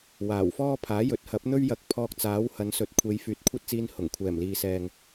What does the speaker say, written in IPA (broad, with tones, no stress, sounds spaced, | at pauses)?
w aː˨˩ w f ɔː˥ pʰ aː˨˥ j ɵ˨˥ t̚ h ɐ˨˥ p̚ n̪ ɵ˥ ɥ j ɐ˧ k̚ pʰ ɔː˧ k̚ t͡s aː˨˥ w h ɐ˨˧ n s ɵ˨˥ t̚ kʷʰ e˨˧ j f yː˨ t̚ kʷʰ ɐ˥ t̚ t͡s iː˧ n h ʊ˨˩ ŋ kʷʰ ɛː˨˩ m l iː˨ s ɛː˨ ŋ